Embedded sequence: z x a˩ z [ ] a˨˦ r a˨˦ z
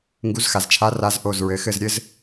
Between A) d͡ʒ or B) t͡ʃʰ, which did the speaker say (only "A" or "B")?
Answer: B